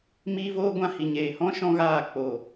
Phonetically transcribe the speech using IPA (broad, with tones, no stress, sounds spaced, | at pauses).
m iː˦ v oː˦ ɡʷ ã˦ h i˨ ɲ eː˨ h ɔ̃˦ ʃ ɔ̃˦ ɣ aː˦˨ k͡p o˨